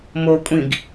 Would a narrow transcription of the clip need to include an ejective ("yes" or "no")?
yes